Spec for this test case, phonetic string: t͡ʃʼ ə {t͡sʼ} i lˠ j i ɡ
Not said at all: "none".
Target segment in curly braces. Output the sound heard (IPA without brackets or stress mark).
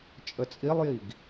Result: t͡sʼ